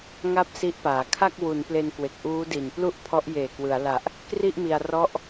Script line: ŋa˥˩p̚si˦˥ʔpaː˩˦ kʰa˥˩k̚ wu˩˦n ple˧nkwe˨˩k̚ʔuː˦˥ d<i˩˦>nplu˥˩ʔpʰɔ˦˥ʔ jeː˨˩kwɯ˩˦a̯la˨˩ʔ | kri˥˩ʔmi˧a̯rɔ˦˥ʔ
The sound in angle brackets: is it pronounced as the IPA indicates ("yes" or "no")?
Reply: no